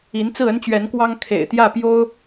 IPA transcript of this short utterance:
i˧˥ n t͡s ɹ̩˥˩ ə˥ n t͡ɕ ɥ ɛ˧˥ n k w ɑ˥ ŋ kʰ ḛ˨˩ ɪ̯ t̪ j ä˥˩ p j o˥ ʊ̯

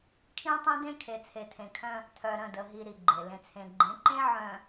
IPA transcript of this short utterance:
kʰ ĩ˦ tˤ ĩ˦ d ẽ˦ kʰ e˨ t͡sʰ e˨ tʰ ẽ˨ kʰ œ̃˦ | tʰ œ˨ ɾ ə̃˦˨ d ə˨ ɦ i˨ ɾ i˨ ɡ͡ǃ e˨ l ẽ˨ t͡sʰ ẽ˨ ɡ͡ǃ ẽ˨˦ ǃ ẽ˦ ʕ œ̃˨

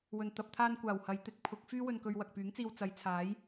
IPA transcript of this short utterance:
w ɵ˨˩ n t̪ ɐ˨ p̚ t̪ʰ aː˧ n kʷ aː˨˩ w h ɐ˨˧ j t̪ ɪ˨˥ k̚ pʰ ʊ˨˥ k̚ f yː˥ w ɵ˧ n k ɵ˧ ɥ w ɐ˨ k̚ p yː˨˥ ŋ t͡s iː˧ w t͡s ɐ˨˧ j t͡sʰ aː˨˥ j

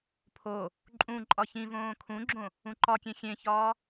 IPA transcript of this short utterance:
pʰ o | ǃʼ ũ ǃʼ ɒ ç ĩ v õː kʰ ũ ɡ͡ǁ õ | ũ ǃ ɒ kʲ ẽ xʲ ẽ ç ɒː

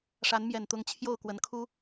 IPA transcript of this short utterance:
ʂ a˨˦ n m j ɛ˨˩ n t̪ ʊ˨˦ ŋ t͡ɕʰ j o˥˨ ʊ̯ k w ə˨˦ n kʰ u˦

